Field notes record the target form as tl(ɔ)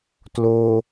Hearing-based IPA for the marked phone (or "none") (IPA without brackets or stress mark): o